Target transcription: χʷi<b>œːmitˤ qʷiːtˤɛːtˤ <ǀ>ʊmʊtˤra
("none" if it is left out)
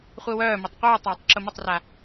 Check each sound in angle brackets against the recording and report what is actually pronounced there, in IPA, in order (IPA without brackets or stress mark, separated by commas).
w, ǁ